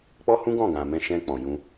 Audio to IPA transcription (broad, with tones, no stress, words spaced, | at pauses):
k͡pɔ˦hũ˦ɡɔ̃˦˨ ɡã˨mɛ̃˧ ʃɛ̃˧ k͡pɔ̃˨jũ˧